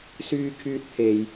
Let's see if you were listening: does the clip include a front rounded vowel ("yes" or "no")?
yes